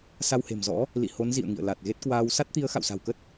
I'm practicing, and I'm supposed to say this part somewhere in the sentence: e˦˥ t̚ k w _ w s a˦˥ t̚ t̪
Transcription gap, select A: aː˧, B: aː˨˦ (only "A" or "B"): A